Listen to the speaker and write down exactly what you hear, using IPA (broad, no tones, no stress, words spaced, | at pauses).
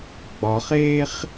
ɡ͡bɒχeːχ